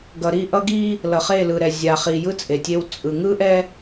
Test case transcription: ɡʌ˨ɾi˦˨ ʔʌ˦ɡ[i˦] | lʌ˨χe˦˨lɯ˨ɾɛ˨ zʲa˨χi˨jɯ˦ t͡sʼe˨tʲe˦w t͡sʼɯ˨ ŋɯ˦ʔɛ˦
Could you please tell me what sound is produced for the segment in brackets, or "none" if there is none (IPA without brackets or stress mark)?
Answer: i˦